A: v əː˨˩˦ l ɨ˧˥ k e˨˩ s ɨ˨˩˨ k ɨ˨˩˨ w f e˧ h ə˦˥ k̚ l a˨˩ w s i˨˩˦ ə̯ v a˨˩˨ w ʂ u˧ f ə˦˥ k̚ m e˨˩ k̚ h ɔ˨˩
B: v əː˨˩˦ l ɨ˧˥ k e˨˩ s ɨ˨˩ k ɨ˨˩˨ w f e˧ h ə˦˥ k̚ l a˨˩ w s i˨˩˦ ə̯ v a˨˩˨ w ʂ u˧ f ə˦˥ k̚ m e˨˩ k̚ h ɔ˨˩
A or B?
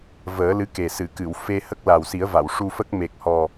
A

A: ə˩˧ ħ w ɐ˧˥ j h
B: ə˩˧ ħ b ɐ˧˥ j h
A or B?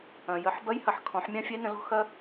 B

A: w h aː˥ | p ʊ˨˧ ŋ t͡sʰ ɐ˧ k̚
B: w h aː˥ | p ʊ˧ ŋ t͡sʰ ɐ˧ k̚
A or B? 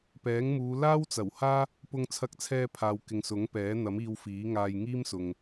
B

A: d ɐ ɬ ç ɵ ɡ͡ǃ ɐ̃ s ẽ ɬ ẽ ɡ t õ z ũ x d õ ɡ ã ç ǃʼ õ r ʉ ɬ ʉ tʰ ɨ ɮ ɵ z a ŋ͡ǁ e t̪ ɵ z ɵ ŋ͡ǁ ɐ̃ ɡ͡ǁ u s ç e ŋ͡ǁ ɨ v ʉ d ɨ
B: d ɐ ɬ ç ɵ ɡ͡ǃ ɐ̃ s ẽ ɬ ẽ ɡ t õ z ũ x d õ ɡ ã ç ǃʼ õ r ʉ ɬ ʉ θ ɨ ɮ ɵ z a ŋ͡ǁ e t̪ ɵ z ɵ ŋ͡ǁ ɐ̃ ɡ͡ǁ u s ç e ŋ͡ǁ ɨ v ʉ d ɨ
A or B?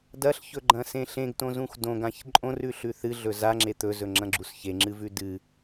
B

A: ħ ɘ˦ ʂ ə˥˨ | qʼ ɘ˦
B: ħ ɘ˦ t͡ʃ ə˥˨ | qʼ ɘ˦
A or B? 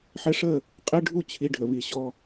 A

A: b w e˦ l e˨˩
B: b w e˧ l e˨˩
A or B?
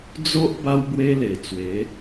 A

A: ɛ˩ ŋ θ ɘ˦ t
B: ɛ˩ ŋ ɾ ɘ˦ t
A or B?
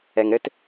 B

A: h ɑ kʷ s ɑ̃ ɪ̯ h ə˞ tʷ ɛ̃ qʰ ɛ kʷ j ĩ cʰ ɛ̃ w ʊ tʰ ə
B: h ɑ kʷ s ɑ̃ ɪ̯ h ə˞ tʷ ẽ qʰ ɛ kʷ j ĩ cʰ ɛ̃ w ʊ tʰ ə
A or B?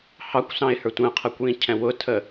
A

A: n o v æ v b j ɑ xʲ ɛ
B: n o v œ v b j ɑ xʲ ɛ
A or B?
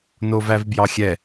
A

